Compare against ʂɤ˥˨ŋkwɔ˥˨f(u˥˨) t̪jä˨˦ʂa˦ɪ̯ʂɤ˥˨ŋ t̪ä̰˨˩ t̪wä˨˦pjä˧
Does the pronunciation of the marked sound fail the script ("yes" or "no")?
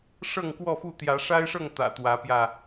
no